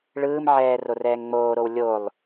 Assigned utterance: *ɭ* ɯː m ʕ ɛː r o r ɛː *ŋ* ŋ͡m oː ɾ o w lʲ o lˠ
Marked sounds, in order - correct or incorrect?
correct, correct

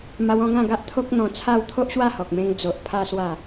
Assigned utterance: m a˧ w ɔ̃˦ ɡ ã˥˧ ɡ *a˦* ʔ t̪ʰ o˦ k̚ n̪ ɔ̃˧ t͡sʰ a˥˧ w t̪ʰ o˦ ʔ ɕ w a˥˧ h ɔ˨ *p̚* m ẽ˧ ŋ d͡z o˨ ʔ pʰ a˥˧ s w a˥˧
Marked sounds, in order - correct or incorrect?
correct, incorrect: k̚

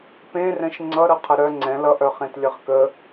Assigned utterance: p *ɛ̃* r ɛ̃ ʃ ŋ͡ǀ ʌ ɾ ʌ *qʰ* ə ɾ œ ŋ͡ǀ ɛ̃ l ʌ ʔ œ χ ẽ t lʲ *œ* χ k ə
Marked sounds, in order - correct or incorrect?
incorrect: ẽ, correct, incorrect: ə

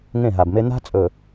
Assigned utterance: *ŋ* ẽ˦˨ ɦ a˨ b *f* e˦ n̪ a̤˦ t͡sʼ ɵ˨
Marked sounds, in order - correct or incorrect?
correct, incorrect: m

